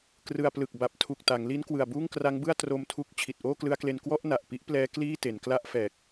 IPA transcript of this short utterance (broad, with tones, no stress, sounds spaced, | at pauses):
k r ɯ˧ a̯ p l ɯ˨˩ k̚ b a˨˩ p̚ tʰ u˨˩ k̚ t a˩˦ ŋ l i˦˥ n k w ɯ˨˩ a̯ b uː˥˩ ŋ k r a˦˥ ŋ b ɯ˥˩ a̯ t r o˧ m tʰ u˦˥ k̚ t͡ɕʰ i˨˩ t̚ ʔ oː˥˩ k l ɯ˦˥ a̯ k l e˧ n k w ɔ˥˩ ʔ n a˨˩ ʔ p i˦˥ ʔ p l ɛː˦˥ k l iː˥˩ t e˩˦ n k l a˥˩ ʔ f ɛː˨˩ k̚